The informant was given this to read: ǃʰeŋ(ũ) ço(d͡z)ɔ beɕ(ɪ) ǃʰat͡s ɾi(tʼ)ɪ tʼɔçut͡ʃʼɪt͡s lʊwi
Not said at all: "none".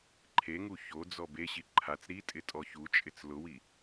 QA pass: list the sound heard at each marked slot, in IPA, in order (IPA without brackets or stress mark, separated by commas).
u, d͡z, i, tʼ